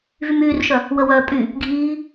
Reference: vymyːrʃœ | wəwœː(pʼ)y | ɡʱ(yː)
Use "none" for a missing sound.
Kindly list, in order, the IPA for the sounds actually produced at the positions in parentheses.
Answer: pʼ, iː

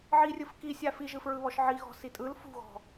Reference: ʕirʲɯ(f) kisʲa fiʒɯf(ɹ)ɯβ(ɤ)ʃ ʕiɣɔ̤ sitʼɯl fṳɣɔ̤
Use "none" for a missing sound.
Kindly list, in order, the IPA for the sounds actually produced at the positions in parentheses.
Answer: f, ɹ, ɔ

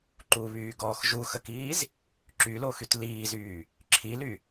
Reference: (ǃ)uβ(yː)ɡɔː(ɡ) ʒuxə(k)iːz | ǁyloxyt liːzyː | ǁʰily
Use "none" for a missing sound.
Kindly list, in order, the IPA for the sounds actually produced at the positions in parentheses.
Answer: ǃ, yː, x, k

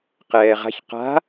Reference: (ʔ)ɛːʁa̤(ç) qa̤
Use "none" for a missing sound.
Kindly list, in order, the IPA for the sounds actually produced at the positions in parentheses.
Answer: q, ç

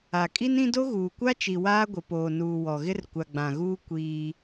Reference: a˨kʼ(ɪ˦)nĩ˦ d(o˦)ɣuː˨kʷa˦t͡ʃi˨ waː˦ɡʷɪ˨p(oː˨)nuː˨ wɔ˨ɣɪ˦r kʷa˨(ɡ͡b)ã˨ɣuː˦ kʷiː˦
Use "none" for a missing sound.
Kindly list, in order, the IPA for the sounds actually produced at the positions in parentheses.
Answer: i˦, o˦, oː˨, ɡ͡b

